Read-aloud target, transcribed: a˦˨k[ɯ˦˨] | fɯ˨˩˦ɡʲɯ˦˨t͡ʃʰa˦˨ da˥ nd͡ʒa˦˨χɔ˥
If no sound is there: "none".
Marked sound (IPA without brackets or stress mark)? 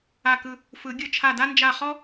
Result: ɯ˦˨